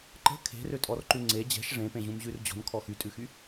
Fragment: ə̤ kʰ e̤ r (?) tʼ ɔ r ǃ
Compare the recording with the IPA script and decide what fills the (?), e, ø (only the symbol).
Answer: ø